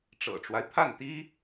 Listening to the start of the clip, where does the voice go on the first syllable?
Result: low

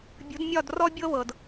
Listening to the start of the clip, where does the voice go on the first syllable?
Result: rising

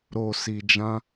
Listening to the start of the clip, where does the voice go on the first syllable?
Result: low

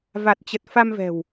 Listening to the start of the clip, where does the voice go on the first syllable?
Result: low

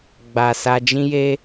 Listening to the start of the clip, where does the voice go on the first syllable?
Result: low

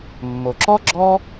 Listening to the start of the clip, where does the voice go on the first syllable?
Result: low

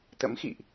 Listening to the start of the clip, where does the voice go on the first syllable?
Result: rising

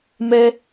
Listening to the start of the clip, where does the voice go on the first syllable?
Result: high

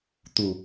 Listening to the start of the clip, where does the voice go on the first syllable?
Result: low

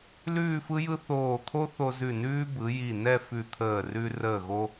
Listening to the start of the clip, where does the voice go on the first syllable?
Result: falling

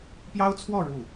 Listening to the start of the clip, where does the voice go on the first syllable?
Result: high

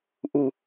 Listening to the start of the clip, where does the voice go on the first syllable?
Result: low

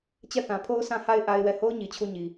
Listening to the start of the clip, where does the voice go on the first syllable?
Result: falling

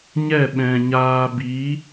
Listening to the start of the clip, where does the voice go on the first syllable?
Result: falling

